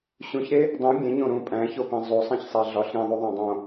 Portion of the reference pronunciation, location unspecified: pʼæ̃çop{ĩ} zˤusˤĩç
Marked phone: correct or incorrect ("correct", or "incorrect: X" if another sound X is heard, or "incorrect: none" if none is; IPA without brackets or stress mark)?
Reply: correct